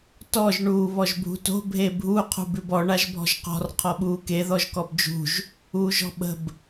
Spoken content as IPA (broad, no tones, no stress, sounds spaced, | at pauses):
t ɔ ʒ ɳ uː β ɔ ʒ bʱ ṳ t o̤ bʱ e bʱ u qʰ ṳ b ʉ b ɔ ɳ a ʒ bʱ ɔ̤ ʒ q ɔ̤ r qʰ ɔ ɓ uː k e ð ɔ ʒ k ɔ b d͡ʒ ṳ ʒ | uː ʒ ɔ̤ ɓ ə̤ b